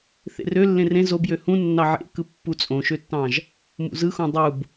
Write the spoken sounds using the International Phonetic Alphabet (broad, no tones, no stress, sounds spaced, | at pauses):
θ ḛ r ø lː ẽ r ẽ z o b j ø h ũ nː ɑ ʕ ḛ k ɯ pː u t͡sʼ õ ʃ ø tː ɑ̃ ʒ | m ṵ z ɯ x õ dˤ u b